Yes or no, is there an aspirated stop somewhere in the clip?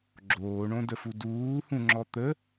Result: no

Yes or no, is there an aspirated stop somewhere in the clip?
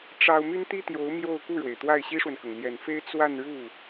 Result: no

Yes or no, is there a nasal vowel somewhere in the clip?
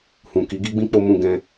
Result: yes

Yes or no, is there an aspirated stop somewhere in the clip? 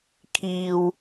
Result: yes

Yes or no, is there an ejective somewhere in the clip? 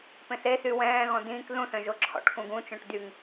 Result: no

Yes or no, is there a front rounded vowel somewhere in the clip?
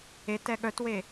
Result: yes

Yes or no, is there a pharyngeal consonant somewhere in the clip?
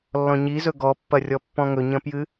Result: no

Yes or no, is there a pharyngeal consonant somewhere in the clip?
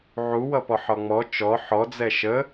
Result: yes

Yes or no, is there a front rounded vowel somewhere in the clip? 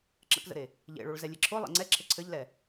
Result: no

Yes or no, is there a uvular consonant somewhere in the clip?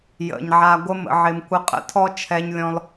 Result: yes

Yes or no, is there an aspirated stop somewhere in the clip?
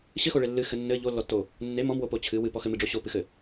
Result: yes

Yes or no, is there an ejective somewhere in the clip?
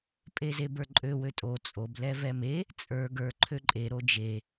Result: yes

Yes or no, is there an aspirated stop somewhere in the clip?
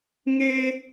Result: no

